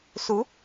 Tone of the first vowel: rising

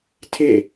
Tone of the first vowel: falling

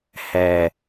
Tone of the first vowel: low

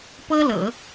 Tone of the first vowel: high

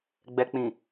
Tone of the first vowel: low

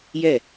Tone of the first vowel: falling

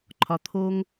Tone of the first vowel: low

